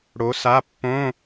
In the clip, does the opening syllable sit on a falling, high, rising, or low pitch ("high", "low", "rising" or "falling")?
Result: rising